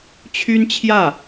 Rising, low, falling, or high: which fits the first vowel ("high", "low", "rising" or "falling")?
high